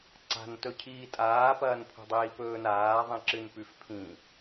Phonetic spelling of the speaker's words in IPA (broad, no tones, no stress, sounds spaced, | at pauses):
ǀ a̤ n t ɵ cʰ iː tʼ aː p ɐː n pʰ ṳ dˤ iː p ɵː n aː ðˤ ĩ ǁ ɨ n p ʉ f pʰ ĩ